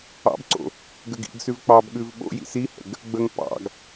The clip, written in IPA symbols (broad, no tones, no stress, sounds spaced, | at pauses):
ɑ̰ b ǀ o̰ | ɡ ə ɡ ḭ ɡ s ʉ v k͡p ɑ b ɠ ʉ v ɓ o̰ j ḭ s i h ə̰ ɡ | ɡ͡b ə ŋ p ɑ̰ ɡ